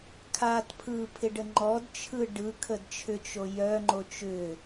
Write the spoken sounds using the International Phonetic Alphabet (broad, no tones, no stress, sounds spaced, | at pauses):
kʰ a t pʰ ɯ pʰ ɪ ɖ ə ŋ͡ǃ ɔ d t͡ʃʰ ɯ ɖ ɯ kʰ ə d t͡ʃʰ ʏ t͡ʃ o j œ ŋ͡ǃ o t͡ʃ ʏ